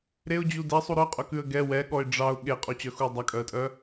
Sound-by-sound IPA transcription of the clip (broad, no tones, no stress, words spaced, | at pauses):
ɾeʊ̯d͡ʑu dɛsˤu ɾœqʼœkʉə̯ ɡɛ wɛɠɔɪ̯ ɖ͡ʐɑʊ̯ ɠeqʼot͡ɕœxuə̯ dˤɑkʼœə̯tʼœ